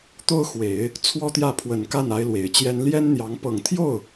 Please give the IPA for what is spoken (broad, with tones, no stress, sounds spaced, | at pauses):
t̪ o˥ ʊ̯ x w e˨˩˦ ɪ̯ | t͡sʰ w ɔ˥ t̪ j ä˥˩ pʰ w ə˨˩ n k a˥˩ n a˧˥ ɪ̯ l w e˨˩ ɪ̯ t͡ɕ j ɛ˥ n l j ɛ˥ n n̪ j ɑ˧˥ ŋ p ɤ˨˩ ŋ t̪ʰ j o˥˩ ʊ̯